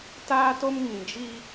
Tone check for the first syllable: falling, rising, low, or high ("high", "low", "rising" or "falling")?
high